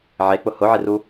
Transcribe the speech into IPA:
ʕ e k͡p ʊ h ʊ ʕ ɪ r u

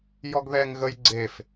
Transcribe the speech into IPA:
j ɔ ɡ ð ɛ ŋ ɣ ə j ɡ͡ǀ e f

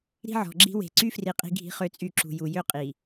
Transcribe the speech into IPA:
ɾ i̤˦ ʕ ɔ̤˨ ɡ͡ǁ i̤˦ w e̤˨ ǀ y˦ f r i˨ qʼ i̤˦ ɡʱ i̤˦ χ ø˦ t͡sʼ y˦˨ ǁ ṳ˨ j u˨ j ø˦ qʼ i˨

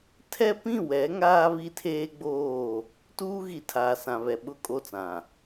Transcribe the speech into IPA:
tʰ ɛ˦ p ĩ˦˨ w ɛ˨˦ ŋ aː˦ β i˦ tʰ eː˦ ɡ͡b oː˦˨ | t uː˦ ɣ i˨ tʰ aː˨ s ã˨ β ɛ˨ ɓ ʊ˦˨ kʼ o˦˨ t͡s ã˨

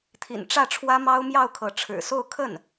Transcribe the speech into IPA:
t̪ʰ ḭ˨˩ n ʈ͡ʂ ä˥˩ ʈ͡ʂʰ w ä˥ m ɑ˥ ʊ̯ m j ɑ˥˩ ʊ̯ kʰ ɤ˧˥ ʈ͡ʂʰ ɻ̩˨˩ s o˥˧ ʊ̯ kʰ ə˥˩ n

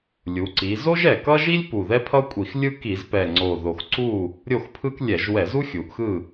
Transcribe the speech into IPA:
lʲ u˩˧ ǀ i˩˧ z o˥ ʒ ɛ˨˩ k ʌ˥ ʒ i˥ lʲ p u˨˩ ð ɛ˥ pʰ ʌ˥ kʷʼ i˧˩˧ x lʲ ɯ˥ k i˧˩˧ z p ɛ˨˩ ŋ͡ǀ o˨˩ ð o˨˩ x ǀ u˥˨ | ɾʲ o˥˨ x pʰ ɯ˥ k lʲ ɛ˧˩˧ ʒ w ɛ˧˩˧ z u˥ xʲ u˩˧ ʔ x ɯ˥˨

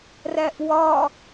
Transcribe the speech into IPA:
r æ ʔ w ɒ

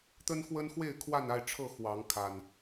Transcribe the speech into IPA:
t̪ ə˦ n x w ə˦ n x w e˥˨ ɪ̯ kʰ w a˥˨ n a˥˨ ɪ̯ ʈ͡ʂʰ ɤ˥˨ x w ɑ˨˦ ŋ kʰ a˨˩ n

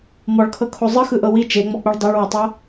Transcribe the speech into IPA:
m ɔ ɭ kʰ ɤ kʰ o zˤ ɯ x ɯ ʔ ɤ w i t͡ʃ e ŋ͡m ɔ k͡p u ɭ dˤ u ɭ w ɔ tˤ ɤ

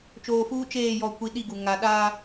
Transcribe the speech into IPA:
t͡ʃ oː˨ f uː˦ t͡ʃ eː˦˨ j ɔ˨ kʷ i˨ ɗ i˦˨ ɡ u˨ ŋ a˨ ɗ a˦

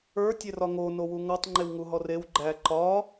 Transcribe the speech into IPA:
ə˞ tʲ e r ɒ ŋ o n o w u ŋ ɒ tˤ ŋ͡ǃ e w ŋ u ɦ ɔ r e w ɡ͡ǃ æ ǃ ɒ

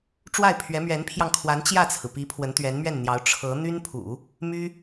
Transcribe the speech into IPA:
ʈ͡ʂ w a˥˩ ɪ̯ pʰ ɥ ɛ˧˥ m ɥ ɛ˧˥ n pʰ j ɑ˧ ŋ kʰ w a˧˥ n t͡ɕ j ä˥˩ t͡sʰ ɹ̩˩ p i˧˥ pʰ w ə˧˥ n t̪ ɥ ɛ˧˥ n m ɥ ɛ˥˩ n n̪ j ɑ˧˥ ʊ̯ ʈ͡ʂʰ ɤ˧˥ n̪ y˥ n pʰ ṵ˨˩˦ | m y˥

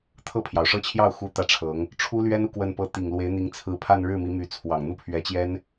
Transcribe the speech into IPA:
t̪ʰ ɤ˥˩ pʰ j ɑ˩ ʊ̯ ʂ ɤ˥˧ t͡ɕʰ j ɑ˥˩ ʊ̯ x u˥ t̪ ä˥˩ ʈ͡ʂʰ ɤ˧˥ ŋ | ʈ͡ʂʰ u˥ l ɥ ɛ˥ n u˥˧ k w ə˥˩ n p ɤ˥ t̪ i˨˩ ŋ l w e˧˥ ɪ̯ n̪ i˧˥ ŋ t͡sʰ ɹ̩˧˥ pʰ a˥˧ n ɻ ɻ̩˥˩ m i˧˥ m y˧˥ t͡sʰ w ɑ˨˩ ŋ n̪ u˥ pʰ ɥ ɛ˧˥ t͡ɕ j ɛ˥ n

